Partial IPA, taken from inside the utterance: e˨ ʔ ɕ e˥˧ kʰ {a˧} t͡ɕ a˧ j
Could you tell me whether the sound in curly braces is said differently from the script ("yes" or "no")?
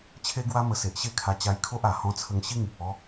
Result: no